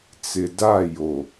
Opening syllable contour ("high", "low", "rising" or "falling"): low